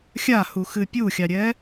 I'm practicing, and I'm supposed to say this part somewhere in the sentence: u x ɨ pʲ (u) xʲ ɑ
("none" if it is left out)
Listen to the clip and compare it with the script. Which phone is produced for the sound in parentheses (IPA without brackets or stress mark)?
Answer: u